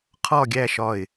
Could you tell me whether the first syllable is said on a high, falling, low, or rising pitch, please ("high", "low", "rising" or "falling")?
falling